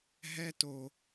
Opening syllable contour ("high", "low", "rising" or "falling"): high